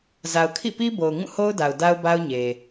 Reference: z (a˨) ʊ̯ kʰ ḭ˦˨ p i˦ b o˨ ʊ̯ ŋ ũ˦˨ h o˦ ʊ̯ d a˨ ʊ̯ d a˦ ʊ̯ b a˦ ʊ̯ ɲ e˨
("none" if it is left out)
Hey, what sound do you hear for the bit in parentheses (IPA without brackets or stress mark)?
a˨